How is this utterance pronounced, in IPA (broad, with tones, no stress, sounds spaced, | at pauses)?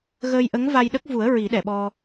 ɣ əː˧ j ʔ ə˧˥ ŋ v a˧ j ɗ ə˦˥ k̚ v u˨˩˦ ə̯ ɹ i˨˩˦ ɗ ɛ˨˩˨ ɓ ɔ˧